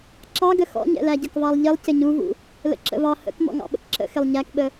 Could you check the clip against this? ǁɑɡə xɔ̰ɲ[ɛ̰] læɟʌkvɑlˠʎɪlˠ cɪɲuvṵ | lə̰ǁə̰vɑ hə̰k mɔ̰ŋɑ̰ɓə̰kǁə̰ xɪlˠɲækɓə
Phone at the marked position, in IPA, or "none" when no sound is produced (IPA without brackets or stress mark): ɛ̰